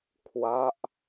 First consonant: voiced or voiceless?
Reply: voiceless